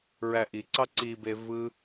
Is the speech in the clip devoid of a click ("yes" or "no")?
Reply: no